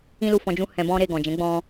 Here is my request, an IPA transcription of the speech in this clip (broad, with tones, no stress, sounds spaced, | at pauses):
ĩ˦ l u˧ f ɔ̃˧ d͡ʒ ũ˦ h ɛ̃˧ b ɔ̃˦ ɾ e˧ ɡ ɔ̃˨ d͡ʒ ɛ̃˨˦ ɡ͡b ɔ̃˧